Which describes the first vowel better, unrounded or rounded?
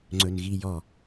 rounded